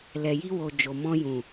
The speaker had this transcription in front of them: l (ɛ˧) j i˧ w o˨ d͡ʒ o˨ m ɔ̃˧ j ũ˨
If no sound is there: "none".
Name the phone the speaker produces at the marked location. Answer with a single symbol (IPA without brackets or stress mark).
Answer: ɛ˨